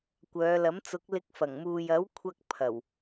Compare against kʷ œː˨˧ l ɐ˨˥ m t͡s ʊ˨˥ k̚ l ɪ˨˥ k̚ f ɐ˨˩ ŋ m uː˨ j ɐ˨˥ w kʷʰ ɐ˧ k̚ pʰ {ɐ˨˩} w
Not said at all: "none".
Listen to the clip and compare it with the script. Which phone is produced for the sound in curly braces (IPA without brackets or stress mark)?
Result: ɐ˨˩